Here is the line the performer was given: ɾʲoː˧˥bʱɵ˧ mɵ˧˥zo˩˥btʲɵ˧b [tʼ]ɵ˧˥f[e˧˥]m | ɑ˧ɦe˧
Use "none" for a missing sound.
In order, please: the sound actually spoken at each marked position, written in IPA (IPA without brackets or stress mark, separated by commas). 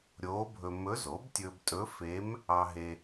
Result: tʼ, e˧˥